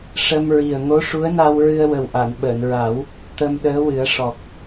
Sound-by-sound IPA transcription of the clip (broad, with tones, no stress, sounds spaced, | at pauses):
ʂ ə˧ m ɹ i˨˩ ə̯ ŋ o˧˥ ʂ u˧˥ ə̯ n a˧ w ɹ ɨ˧ ə̯ w ə˨˩ w ʔ a˨˩˨ n ɓ əː˨˩˨ n ɹ a˨˩˦ w | t̪ ə˧ m ɗ əː˧˥ w ɨ˨˩˦ ə̯ ʂ ɔ˨˩ k̚